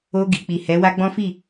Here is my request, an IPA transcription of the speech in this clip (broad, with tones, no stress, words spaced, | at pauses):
o˧ɡi˨k͡pi˨ hɛ˨˦wa˦ɡ͡bɔ̃˦fi˦˨